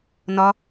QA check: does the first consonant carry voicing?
yes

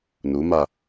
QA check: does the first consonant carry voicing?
yes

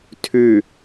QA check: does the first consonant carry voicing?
no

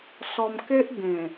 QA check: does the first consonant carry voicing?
no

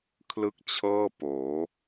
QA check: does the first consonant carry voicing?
no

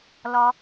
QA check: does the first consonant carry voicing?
yes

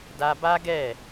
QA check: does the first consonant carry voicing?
yes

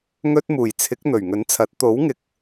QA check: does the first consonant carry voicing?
yes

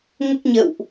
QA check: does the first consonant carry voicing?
yes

